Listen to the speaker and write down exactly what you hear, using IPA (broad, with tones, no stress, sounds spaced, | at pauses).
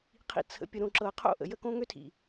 qʰ ḭ˨ t͡sʰ ə̰˨ pʲ ə˨ ɾ õ˨ ǁ ɤ˨ qʰ o̰˦˨ ʔ ə̰˨ j ə˦ k õ˦ ŋ ø˦ tʰ ḭ˨